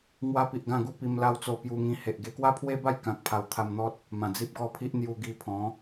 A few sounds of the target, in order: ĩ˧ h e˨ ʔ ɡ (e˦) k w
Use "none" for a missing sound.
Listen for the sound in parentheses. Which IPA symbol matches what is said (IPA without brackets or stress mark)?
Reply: e˧